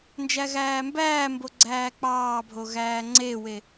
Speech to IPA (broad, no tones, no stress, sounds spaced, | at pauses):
n d͡ʒ æ ɣ æː m b æː m b o ɡ͡ǀ æː k͡p ɑː bʱ o ɣ æː ŋ͡ǀ e w e